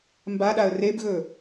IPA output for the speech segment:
mbaɗaə̯ rebɣɵ

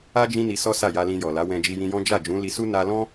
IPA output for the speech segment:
a˦ d͡ʒĩ˦ni˧ sɔ˦sa˦˨ja˧ lĩ˧jɔ˨la˨˦wɛ̃˧ d͡ʒi˧jĩ˧jɔ̃˦ d͡ʒa˦˨d͡ʒũ˨˦ li˧su˦ na˧lɔ̃˦

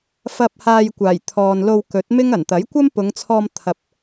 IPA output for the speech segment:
fɐ˧p̚ haː˧jkʷaː˨˩jt̪ʰɔː˨n lo˧wkɵ˨˥t̚mɪ˥ŋ ɐ˨˩nt̪ɐ˨˥jkʷɐ˥m pʊ˨˧ŋt͡sʰɔː˧mt̪ʰɐ˨p̚

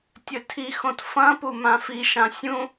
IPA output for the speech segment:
tʲɵtʰixõt fɐ̃pu mãfiʃã sʲũ

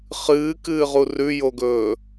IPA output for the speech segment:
χɨːkɨːʁu rʉjoɡɵː

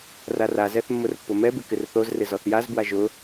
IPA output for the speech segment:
rarazɛθ mːʊrpːʊmɛbɪ kɪrθozrɪ zɔθjazbwa ʒʊ

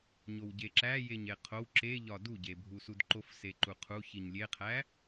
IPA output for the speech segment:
ɲowɟeǁæ jeɲeqʰow ǁeʎɒ duɟebʱu sudǃofseǃu qʰu çiɲlʲeqʰæ

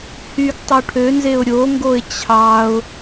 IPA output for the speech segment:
hyɡ tˤoʈʰønzeʊ̯ ɾʲoŋɡoɪ̯ t͡ɕʰɑʊ̯

